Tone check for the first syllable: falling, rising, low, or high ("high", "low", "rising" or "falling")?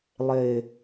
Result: low